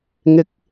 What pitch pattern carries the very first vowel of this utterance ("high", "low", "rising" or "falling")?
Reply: rising